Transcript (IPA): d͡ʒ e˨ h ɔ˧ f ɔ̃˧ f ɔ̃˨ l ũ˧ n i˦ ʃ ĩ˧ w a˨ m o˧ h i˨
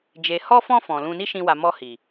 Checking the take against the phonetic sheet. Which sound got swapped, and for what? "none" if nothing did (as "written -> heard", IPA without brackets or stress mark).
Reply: o˧ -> ɔ˧